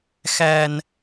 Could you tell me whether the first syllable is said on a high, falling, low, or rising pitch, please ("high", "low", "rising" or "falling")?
low